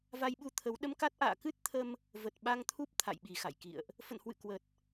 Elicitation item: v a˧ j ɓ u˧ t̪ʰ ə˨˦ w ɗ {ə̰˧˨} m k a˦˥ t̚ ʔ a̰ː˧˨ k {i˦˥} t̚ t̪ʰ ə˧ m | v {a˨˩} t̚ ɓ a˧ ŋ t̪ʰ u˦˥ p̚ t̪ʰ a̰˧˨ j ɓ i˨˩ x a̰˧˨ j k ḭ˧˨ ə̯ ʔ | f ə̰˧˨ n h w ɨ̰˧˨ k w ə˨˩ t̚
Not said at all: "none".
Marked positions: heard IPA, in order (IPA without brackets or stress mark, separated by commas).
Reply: ə˧, ɨ˦˥, ə˨˩